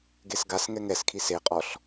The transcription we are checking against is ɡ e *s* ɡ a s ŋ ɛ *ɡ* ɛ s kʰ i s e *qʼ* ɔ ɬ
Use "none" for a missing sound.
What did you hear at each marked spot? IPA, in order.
s, ŋ, qʼ

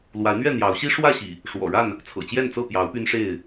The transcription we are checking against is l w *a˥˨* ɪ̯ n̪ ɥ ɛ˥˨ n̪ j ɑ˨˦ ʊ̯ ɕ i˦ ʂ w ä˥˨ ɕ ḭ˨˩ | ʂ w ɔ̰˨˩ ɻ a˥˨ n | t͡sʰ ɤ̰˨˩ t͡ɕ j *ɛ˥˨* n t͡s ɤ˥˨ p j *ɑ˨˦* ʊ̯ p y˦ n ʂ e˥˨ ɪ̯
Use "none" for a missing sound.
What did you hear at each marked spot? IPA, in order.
a˨˦, ɛ˥˨, ɑ˨˦

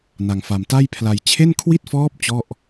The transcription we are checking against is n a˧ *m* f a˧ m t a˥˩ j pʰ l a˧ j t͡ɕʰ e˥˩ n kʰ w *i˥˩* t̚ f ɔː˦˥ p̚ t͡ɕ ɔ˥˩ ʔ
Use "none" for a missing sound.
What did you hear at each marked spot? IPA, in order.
ŋ, i˥˩

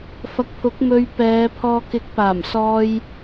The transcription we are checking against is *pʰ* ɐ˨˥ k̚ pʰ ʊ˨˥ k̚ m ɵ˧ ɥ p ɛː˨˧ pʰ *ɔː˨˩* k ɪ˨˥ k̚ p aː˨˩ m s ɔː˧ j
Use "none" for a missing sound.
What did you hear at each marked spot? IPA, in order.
f, ɔː˧

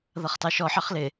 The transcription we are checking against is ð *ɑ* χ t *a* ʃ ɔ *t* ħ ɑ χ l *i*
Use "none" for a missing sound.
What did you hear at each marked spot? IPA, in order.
ʌ, ɑ, none, ɪ

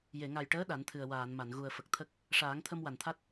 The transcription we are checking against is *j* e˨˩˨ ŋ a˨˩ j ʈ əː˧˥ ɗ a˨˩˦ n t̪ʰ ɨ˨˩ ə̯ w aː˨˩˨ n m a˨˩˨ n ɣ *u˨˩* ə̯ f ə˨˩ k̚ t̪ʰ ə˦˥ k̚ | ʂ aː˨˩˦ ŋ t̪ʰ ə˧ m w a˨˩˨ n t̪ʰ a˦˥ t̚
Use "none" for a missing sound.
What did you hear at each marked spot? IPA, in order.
j, u˨˩

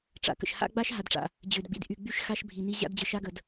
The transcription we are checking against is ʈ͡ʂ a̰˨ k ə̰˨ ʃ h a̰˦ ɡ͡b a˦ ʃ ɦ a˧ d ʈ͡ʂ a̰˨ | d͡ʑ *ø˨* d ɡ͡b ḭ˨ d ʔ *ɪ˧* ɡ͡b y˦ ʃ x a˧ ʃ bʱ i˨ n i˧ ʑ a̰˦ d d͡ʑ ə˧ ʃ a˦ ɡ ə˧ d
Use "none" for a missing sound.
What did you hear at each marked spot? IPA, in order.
ø˨, y˧

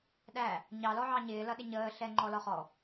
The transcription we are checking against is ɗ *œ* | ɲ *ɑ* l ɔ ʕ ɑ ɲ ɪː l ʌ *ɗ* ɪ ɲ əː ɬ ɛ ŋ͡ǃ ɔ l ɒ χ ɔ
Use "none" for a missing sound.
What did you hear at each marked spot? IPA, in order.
æ, ɑ, ɗ

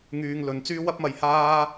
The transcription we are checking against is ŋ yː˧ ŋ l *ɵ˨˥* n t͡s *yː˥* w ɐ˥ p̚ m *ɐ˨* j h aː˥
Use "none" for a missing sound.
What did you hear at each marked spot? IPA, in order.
ɵ˨˧, yː˥, ɐ˧

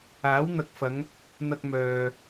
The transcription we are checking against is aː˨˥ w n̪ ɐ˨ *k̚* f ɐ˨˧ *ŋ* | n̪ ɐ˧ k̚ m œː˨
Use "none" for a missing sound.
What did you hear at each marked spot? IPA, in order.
k̚, ŋ

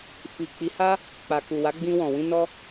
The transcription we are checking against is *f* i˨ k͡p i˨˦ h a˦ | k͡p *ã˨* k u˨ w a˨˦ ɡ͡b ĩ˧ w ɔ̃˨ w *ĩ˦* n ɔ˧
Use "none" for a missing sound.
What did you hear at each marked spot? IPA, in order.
f, a˨, ĩ˧

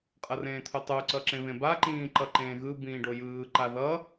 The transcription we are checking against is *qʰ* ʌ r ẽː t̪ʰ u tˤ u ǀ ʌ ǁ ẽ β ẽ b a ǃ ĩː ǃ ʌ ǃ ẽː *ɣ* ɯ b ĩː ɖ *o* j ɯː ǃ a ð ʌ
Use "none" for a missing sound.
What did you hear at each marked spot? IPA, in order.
qʼ, ɣ, o

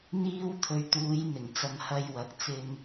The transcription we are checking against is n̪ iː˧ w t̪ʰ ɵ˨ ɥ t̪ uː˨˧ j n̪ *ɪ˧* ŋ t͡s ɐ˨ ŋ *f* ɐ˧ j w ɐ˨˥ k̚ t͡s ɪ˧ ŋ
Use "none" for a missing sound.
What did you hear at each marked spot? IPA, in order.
ɪ˨˩, h

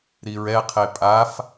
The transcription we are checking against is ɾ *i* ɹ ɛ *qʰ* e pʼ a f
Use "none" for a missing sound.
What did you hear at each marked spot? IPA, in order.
i, qʰ

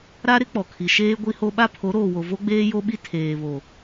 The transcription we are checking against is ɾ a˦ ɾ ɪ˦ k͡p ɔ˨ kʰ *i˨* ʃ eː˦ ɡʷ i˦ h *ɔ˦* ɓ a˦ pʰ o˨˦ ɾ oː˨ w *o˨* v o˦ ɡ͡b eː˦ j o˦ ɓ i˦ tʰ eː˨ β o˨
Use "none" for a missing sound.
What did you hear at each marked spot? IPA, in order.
i˨, o˦, o˨

